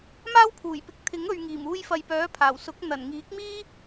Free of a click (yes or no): yes